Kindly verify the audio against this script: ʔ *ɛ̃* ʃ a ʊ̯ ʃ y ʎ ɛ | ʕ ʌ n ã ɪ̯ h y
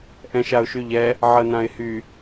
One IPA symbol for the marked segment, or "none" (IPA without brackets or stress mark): ɛ̃